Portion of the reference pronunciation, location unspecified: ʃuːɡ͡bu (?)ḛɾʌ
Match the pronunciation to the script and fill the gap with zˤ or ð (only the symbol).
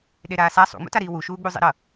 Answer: zˤ